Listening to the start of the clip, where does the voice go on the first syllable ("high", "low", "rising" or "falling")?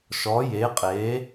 rising